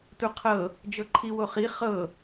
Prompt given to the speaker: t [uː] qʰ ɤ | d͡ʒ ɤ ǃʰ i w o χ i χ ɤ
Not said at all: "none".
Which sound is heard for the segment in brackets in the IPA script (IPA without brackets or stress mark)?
u